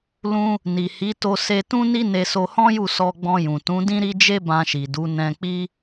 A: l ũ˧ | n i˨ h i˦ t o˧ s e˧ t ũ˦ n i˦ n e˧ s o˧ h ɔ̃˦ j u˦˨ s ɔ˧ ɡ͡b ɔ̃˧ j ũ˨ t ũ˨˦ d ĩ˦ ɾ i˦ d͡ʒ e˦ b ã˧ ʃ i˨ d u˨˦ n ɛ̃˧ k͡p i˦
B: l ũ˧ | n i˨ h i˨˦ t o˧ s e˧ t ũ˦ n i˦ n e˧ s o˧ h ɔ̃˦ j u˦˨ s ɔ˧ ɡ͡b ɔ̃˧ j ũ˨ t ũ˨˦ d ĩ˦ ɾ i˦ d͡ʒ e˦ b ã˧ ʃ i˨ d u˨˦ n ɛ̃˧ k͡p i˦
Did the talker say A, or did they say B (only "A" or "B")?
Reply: B